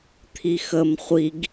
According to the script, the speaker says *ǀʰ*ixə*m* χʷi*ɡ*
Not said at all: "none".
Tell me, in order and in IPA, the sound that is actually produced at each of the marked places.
t̪ʰ, m, ɡ

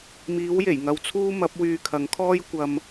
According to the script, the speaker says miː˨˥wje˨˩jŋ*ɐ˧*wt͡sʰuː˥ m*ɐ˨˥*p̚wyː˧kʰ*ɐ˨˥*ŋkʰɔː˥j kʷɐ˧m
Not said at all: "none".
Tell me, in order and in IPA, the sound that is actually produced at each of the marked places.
ɐ˧, ɐ˨˥, ɐ˨˥

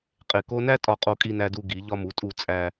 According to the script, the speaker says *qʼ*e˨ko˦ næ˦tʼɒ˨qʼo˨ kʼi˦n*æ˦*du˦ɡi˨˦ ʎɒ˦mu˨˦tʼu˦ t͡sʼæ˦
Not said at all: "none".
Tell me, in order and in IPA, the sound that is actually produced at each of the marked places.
qʼ, æ˦

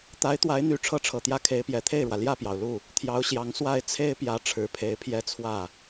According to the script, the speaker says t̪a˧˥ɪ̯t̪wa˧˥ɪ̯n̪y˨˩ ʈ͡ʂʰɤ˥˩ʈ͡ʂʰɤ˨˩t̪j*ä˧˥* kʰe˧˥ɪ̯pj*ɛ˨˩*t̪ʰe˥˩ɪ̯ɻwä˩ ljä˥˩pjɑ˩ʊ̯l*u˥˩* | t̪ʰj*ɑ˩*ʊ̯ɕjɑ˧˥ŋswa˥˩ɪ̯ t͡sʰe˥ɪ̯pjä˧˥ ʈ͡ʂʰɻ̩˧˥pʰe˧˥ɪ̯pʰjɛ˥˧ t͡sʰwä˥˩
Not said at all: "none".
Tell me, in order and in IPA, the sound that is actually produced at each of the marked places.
ä˥˩, ɛ˨˩, u˥˩, ɑ˧˥

